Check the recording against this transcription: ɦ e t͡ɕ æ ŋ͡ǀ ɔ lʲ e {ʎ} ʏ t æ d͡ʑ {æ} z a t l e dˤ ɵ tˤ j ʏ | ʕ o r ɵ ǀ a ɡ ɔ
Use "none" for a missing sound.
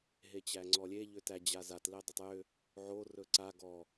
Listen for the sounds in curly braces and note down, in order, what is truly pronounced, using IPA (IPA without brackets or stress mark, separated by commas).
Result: ʎ, a